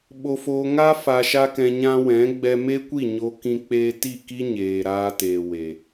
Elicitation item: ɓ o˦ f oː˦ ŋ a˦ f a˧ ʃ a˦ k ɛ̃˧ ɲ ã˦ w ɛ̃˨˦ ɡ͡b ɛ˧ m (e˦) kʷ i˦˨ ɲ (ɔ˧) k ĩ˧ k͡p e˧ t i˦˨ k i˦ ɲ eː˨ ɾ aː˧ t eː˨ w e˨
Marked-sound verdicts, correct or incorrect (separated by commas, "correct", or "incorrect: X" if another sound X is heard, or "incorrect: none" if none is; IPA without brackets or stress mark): correct, incorrect: o˧